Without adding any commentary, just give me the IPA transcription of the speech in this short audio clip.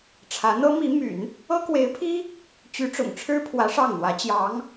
ʈ͡ʂʰä˧˥ n̪ɤ˥ mi˧˥my̰˨˩˦n | ɤ˥kwe˧˥ɪ̯pʰi˥ | t͡ɕy˧˥ʈ͡ʂʊ̰˨˩ŋʈ͡ʂʰɻ̩˥pʰwä˧˥ ʂɑ˥˩ŋn̪wä˧˥t͡ɕjɑ˧˥ŋ

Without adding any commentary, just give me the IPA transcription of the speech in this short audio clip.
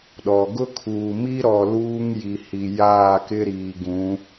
ɗɔ˨ ɡʊ˦kʰuː˨mi˦ɾɔ˨ luː˦ŋ ji˨hi˨jaː˦˨kɪ˦ ɾiː˨ɡũ˨˦

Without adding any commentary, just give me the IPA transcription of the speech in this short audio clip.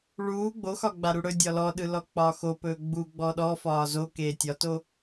ɭuː ɡ͡boxɒ ɡ͡baɾuɽɵ dʲɒlɔɗɯlɔ k͡pɒːxo pɵːɡ͡bu ɡ͡bɔɗɔ fɒːzo keːtʲɒto

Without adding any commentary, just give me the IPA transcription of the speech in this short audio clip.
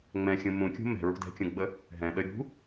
ŋ͡mɛ̃xʲũ mũ kʲṳmɛ̤ɹṳ dɛ̤kʲũɡ͡bə | ɦɛ̃ɗə ɾʲṳ

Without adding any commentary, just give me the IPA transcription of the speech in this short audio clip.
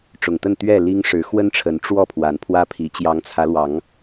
ʈ͡ʂʊ˨˩ŋt̪ə˥˨n t̪ɥɛ˥˨ li˦ŋʂɻ̩˨˦ xwə˦nʈ͡ʂʰə˨˦n ʈ͡ʂwɔ˥˨pʰwa˨˦n pʰwä˦pʰi˨˦ t͡ɕjɑ˨˦ŋt͡sʰä˨˦lwɑ˨˦ŋ

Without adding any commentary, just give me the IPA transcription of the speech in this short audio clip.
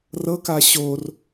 rɤka ɕor

